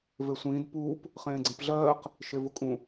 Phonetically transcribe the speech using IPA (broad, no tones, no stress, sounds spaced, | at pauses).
v e sʷ ĩː d p uː p | χ ẽː ɡ͡ǀ ĩ p ɮ ɜː q | ʃ e v ʊ kʼ ũ